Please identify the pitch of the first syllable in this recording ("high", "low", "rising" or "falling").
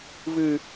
low